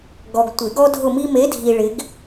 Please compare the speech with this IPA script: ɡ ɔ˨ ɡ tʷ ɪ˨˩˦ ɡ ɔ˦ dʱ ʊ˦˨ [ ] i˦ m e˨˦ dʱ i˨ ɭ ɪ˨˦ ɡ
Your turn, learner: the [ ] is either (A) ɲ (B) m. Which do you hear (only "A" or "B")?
B